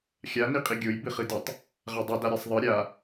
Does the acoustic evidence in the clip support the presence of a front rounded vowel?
no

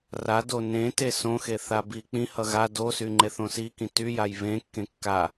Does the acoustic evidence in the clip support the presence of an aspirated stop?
no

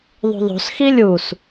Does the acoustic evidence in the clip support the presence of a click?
no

